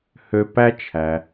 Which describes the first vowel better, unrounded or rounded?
rounded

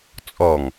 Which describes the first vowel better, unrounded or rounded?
rounded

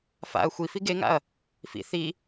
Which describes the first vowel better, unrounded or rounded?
unrounded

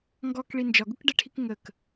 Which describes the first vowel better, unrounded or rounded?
rounded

